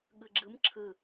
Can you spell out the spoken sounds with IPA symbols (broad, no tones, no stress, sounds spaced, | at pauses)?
ɠ ɨ ɡ͡ǁ ɨ m ǁʰ ɨ